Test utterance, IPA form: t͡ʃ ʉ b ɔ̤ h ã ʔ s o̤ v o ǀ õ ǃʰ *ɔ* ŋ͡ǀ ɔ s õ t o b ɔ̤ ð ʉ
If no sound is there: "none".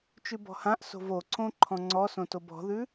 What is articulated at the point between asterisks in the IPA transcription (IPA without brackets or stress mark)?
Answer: ɔ̃